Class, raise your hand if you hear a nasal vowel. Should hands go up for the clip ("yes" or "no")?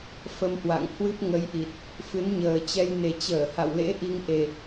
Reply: no